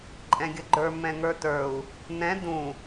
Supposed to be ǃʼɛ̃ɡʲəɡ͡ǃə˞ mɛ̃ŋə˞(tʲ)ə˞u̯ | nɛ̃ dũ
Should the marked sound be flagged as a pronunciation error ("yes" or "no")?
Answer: yes